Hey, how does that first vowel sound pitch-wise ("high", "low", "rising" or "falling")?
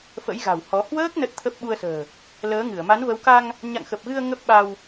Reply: rising